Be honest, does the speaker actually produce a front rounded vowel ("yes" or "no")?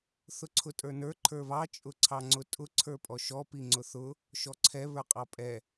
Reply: no